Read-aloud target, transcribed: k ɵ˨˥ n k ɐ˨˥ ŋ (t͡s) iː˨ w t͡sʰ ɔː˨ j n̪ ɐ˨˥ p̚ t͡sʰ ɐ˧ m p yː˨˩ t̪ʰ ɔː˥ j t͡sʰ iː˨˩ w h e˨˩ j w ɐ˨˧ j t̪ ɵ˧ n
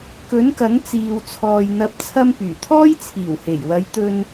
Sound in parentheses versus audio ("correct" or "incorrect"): correct